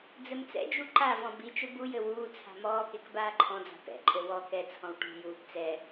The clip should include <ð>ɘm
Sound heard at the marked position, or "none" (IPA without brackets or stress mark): d͡z